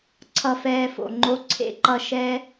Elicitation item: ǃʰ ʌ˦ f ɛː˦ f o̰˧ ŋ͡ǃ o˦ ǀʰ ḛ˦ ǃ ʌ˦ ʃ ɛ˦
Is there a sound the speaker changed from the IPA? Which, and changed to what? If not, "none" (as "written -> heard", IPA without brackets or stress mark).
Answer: ǃʰ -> ǀʰ